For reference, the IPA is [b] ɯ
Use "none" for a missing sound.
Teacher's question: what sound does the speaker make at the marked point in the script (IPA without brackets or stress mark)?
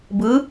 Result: b